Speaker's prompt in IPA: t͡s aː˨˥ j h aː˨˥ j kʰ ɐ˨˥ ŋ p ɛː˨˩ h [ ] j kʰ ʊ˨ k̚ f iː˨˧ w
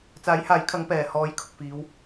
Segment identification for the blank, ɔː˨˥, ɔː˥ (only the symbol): ɔː˨˥